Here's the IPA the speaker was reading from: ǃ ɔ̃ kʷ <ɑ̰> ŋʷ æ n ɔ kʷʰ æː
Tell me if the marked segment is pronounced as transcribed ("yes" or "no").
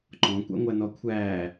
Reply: yes